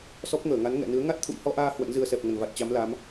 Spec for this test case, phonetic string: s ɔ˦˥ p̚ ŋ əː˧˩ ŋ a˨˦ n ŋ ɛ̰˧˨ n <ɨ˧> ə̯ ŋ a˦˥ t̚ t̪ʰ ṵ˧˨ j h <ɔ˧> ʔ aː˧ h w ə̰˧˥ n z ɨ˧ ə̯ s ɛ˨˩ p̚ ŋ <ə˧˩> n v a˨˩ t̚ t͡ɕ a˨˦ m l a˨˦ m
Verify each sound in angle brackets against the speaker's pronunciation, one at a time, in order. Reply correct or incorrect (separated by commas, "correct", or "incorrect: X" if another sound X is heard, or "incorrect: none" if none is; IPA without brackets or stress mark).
incorrect: ɨ˨˦, correct, correct